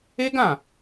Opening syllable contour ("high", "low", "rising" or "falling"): high